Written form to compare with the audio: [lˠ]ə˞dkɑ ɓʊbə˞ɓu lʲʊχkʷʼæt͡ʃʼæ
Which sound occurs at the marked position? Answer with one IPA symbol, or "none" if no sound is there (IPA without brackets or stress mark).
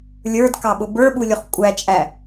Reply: lʲ